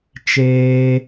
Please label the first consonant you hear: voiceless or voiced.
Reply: voiceless